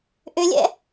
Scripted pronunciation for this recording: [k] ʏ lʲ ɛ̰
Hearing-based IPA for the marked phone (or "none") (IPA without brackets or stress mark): ʔ